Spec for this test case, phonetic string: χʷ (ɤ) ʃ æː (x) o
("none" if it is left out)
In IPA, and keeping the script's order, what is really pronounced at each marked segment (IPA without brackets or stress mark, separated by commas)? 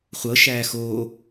ɤ, x